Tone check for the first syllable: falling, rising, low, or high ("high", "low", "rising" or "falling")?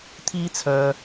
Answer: high